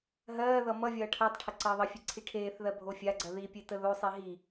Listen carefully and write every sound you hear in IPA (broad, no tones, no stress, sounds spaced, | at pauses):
ɦ ɜː ð ʌ m ʌ vʲ ʌː ʈʰ əː tˤ ʈʰ ə ǀ əː ðˤ ʌ fʲ e ǀʰ i ʈʰ eː θ ð ɜ bʱ o fʲ a ɡ͡ǀ ɜ ð i pʲ e t ə ð o sˤ i ɦ i